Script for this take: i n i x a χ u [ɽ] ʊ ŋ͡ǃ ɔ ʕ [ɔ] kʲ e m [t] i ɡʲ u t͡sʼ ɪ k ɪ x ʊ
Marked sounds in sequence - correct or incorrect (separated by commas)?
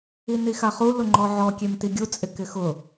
incorrect, correct, correct